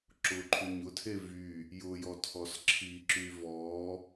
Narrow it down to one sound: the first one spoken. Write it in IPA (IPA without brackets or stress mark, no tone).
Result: ǁ